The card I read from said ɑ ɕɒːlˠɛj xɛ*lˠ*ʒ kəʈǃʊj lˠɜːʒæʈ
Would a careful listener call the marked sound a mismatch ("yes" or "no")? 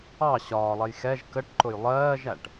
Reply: yes